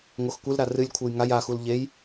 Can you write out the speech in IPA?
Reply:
ŋoxkʷɨlɾa rɨlʲkʷʰɘj ŋaj axul ʎej

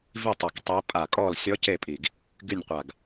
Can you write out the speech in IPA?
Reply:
vi˦˨tˤe˨˩k tˤi˦˥pʼa˦˨ kʼɔ˦˨lsʲɔ˦˥ce˦˨pʼi˨˩ɡ | ɡy˦˨nʲqʷa˨˩ɡ

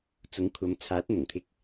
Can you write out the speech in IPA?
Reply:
t͡sʊ˨˥ŋkʷʰɐ˨˧m t͡sʰaː˨˥t̚ n̪ʊ˨˩ŋt̪ʰɪ˧k̚

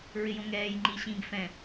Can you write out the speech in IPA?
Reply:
ɹɪjõŋɛːj ŋ͡ǃiɕĩɡ fɛ̃

